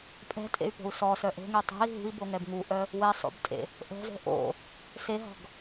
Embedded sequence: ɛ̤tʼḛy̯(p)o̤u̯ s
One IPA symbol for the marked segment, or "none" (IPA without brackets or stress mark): p